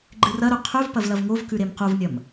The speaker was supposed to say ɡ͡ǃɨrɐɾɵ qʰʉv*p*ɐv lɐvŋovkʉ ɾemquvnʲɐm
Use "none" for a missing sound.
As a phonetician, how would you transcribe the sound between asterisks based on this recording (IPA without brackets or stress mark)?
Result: p